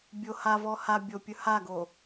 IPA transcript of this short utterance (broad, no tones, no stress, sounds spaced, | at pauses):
bʲ o h a v ɔ h a bʲ o pʲ ɵ h a ɡ o